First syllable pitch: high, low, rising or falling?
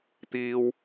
high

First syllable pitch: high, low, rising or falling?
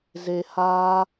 low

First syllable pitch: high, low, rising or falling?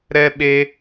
high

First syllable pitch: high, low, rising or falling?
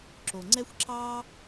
low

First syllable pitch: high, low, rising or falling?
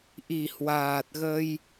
low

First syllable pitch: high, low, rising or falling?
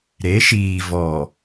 rising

